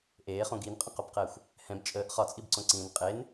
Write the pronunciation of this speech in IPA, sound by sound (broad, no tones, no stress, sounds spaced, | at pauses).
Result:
ʔ eː χ õ ɡ i n qʼ ə̃ q o b q ɛ xʷ | h ɛ̃ b t͡ʃʼ əː ʔ χ ɒ t͡sʼ i b ǀ õ ǀ ĩː n qʼ e n